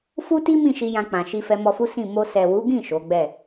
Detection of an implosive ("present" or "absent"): absent